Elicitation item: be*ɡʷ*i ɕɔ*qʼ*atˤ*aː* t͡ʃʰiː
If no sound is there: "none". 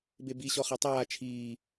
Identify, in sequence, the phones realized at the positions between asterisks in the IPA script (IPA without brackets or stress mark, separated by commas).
b, χ, aː